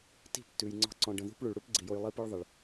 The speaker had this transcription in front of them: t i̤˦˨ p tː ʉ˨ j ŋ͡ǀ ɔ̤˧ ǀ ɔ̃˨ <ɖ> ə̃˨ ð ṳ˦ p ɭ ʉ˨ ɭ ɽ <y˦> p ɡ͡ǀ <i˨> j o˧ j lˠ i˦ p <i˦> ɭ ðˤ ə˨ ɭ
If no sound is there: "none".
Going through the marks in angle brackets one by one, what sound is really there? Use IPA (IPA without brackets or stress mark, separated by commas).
ɖ, u˦, i˨, ɨ˦